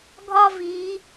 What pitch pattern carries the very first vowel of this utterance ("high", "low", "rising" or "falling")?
high